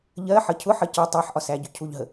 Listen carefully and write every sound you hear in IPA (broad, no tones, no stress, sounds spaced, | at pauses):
ʎ ɜ ħ ʌ cʰ ʊ ħ ʌ c ə tˤ ɜ ħ ʔ ɒ s æ ɟ ʊ cʰ u ʎ ɦ ə